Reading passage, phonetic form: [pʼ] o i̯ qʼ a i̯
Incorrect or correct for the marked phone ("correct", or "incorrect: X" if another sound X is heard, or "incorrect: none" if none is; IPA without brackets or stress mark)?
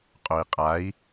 incorrect: qʼ